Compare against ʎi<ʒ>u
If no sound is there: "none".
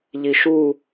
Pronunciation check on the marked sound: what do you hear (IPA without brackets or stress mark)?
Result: ʃ